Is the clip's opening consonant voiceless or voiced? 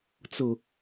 voiceless